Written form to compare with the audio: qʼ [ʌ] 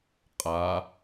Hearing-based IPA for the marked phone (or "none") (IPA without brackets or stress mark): a